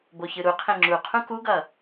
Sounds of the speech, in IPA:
b o ç ɯ ɾ u qʰ ẽ ŋ͡ǁ u qʰ ũ k u ɡ ʌ

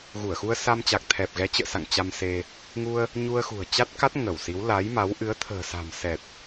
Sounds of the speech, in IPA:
ɣ u˧˩ ə̯ x u˧ ə̯ s a˧ m t͡ɕ a˨˩ k̚ t̪ʰ ɛ˨˩ p̚ ɣ ɛ˨˦ t͡ɕ ə̰ː˧˨ s a̰˧˨ ŋ t͡ɕ a˧ m s e˧ | ŋ u˧ ə̯ | ɲ u˧ ə̯ x ṳ˨˩ ə̯ t͡ɕ a˦˥ t̚ k a˦˥ t̚ ŋ ə˧˩ w s i˨˦ w l a˨˦ j m a˨˦ w ʔ ɨ˨˦ ə̯ t̪ʰ ə̤ː˨˩ s a̤˨˩ m s ɛ˨˩ t̚

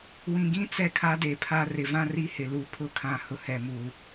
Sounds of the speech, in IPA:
w ĩ˨ ɡ ĩ˦ t͡s ɛ˦ kʰ a˦ d e˨ pʰ a˦ r ɪ˨ v ã˦ r i˦ h ɪ˨ l u˨ pʰ ʊ˦ kʰ ã˨ h ʊ˨ h ɛ˨ m u˨

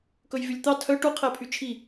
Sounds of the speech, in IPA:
k ɵ j v y lʲ t̪ ɑ tʰ œ ʈ u qʰ ɛ pʰ y t͡ʃʰ i

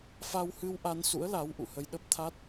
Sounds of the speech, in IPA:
f a˧ w h ɨ˧ w ʔ a˧ n s ṵ˧˥ ə̯ l a˨˦ w ʔ ṵ˧˨ h ə˧ j ɗ ə˦˥ p̚ t̪ʰ a˦˥ t̚

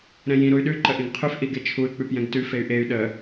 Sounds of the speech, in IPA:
ɾ ɛ̃ j ĩ ɾ u y̯ ɗ ʉ ǃ ə ʔ ĩ ɡ qʰ ʉ f ʔ i ɡ e t͡ʃʰ u y̯ k͡p ʉ p j ɛ̃ ɡ t ʉ f e y̯ ʔ e y̯ ɗ ə

